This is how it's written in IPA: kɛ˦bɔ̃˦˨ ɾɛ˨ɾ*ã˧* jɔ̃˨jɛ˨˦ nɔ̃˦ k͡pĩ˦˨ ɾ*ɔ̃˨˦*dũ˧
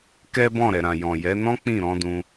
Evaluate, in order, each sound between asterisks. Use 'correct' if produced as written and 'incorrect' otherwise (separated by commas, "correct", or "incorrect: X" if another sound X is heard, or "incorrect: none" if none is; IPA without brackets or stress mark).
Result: incorrect: ã˨, correct